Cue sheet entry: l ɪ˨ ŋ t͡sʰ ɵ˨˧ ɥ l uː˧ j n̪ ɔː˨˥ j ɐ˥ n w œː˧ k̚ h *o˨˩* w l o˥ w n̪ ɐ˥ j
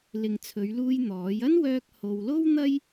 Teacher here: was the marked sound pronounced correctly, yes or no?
no